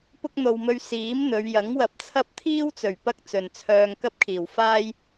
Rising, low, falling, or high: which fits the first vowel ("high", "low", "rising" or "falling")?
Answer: high